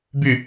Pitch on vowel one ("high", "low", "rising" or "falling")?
falling